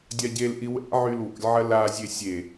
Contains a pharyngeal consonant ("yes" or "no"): yes